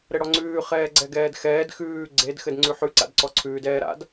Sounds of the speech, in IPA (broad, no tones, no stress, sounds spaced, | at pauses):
ɾ ɘ ɽ ɔ ŋ͡ǀ ʉː χ ɛː ɡ͡ǀ ɛ ɡ ɛː d x ɛː d x ʉː ɡ͡ǀ e d x ɘ d ŋ͡ǀ ʉ ħ ʉ ǀ a̰ d ǀ ɔ ǀʰ ʉː d ɛː ɾ a̰ d